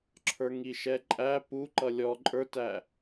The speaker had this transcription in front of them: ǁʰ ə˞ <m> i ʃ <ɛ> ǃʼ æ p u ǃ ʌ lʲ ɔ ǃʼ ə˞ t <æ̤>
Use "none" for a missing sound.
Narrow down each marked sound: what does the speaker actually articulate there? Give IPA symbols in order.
ŋ, ɛ, æ

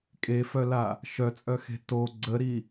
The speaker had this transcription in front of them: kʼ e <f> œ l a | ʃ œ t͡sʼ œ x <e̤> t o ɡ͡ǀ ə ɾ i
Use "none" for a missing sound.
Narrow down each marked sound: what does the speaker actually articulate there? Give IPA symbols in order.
f, e̤

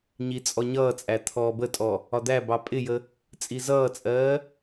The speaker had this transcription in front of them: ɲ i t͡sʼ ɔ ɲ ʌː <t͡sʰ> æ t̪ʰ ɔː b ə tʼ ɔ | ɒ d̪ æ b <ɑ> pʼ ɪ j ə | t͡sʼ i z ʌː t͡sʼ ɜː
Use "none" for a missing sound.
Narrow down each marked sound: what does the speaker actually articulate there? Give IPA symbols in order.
t͡sʼ, ɑ

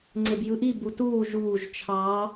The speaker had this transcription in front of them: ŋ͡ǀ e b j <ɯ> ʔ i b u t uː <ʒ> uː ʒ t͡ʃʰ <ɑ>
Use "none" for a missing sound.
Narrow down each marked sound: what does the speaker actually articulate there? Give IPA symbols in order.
ɯ, ʒ, ɑ

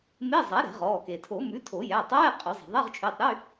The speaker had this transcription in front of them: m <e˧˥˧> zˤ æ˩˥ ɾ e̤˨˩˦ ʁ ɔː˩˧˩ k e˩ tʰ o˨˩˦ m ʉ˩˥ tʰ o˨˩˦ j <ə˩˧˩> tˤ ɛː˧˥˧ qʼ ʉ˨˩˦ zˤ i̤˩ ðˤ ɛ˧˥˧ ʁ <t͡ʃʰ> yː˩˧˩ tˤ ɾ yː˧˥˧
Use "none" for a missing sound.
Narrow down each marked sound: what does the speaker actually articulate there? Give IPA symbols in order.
e˧˥˧, æ˩˧˩, t͡ʃʰ

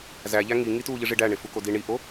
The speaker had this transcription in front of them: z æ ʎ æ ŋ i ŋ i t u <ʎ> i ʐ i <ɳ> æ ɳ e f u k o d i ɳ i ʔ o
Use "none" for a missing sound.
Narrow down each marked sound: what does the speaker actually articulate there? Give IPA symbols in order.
ʎ, ɖ

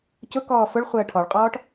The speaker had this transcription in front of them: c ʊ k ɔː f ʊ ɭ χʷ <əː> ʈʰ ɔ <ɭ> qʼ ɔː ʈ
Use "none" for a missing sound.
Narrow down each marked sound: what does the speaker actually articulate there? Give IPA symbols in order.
əː, ɭ

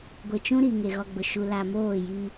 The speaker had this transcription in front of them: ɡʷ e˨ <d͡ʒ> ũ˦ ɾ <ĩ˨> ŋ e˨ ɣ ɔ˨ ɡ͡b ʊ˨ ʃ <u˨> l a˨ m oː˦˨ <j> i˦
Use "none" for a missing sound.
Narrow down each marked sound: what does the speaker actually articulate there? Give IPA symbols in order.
t͡ʃ, i˨, u˨, j

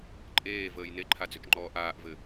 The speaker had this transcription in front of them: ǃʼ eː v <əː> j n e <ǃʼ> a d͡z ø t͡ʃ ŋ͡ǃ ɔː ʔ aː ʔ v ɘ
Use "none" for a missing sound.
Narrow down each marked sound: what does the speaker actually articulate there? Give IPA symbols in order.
əː, ǃʰ

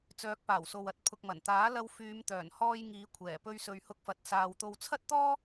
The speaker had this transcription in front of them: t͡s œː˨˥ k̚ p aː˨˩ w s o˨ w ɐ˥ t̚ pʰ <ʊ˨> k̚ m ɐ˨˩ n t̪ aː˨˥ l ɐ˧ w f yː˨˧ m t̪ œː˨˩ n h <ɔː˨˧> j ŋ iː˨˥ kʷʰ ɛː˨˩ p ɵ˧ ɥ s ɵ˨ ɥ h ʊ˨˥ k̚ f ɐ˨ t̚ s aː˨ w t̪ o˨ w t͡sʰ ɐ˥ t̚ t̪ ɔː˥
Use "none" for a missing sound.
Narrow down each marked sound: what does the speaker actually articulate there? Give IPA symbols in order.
ʊ˨, ɔː˧

